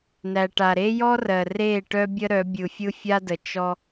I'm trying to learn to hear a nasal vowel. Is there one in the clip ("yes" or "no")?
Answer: no